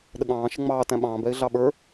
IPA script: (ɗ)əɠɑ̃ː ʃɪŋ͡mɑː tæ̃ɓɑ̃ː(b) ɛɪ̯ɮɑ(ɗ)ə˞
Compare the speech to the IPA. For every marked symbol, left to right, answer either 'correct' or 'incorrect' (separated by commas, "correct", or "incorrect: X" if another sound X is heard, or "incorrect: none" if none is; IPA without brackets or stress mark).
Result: correct, correct, incorrect: ɓ